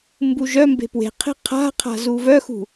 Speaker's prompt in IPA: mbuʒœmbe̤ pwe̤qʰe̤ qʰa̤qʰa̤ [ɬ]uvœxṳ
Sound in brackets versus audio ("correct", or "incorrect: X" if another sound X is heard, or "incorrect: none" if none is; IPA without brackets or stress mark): incorrect: z